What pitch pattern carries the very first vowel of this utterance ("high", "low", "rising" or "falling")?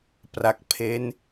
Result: low